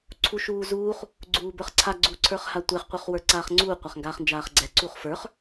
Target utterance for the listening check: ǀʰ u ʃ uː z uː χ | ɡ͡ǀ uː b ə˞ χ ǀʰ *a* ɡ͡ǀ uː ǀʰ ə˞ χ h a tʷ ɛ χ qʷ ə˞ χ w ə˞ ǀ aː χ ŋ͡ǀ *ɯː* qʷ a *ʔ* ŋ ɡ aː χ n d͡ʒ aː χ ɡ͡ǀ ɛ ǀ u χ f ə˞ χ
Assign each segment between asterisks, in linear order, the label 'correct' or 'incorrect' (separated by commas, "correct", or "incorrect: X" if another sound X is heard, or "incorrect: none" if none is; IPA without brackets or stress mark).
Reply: correct, incorrect: uː, incorrect: χ